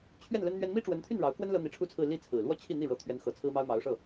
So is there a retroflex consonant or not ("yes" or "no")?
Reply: yes